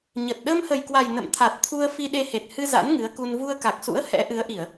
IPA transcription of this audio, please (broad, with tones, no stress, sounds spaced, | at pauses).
ɲ ə˨˩ t̚ ɗ əː˧ m h ə˨˩ j k w a˨˩ j n ə̰˧˨ m t̪ʰ a˨˩ t̚ t̪ʰ u˧ ə̯ f i˧ ɗ e˧ h e˨˩ t̚ h ɨ˧ z a̰˧˥ n ŋ ɨ˨˦ ə̯ k u˧ n v u˧ ə̯ k a˨˩ k̚ s ṵ˧˥ ə̯ h ɛ̰˧˥ ʔ ɨ˨˦ ə̯ ʔ i˧˩˨ ə̯